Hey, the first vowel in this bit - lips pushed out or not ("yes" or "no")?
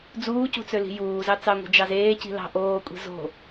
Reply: yes